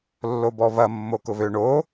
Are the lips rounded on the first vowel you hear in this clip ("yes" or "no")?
yes